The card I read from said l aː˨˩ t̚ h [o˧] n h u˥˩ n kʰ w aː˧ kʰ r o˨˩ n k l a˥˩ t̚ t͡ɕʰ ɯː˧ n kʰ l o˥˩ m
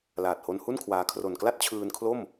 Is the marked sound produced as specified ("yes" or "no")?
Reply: yes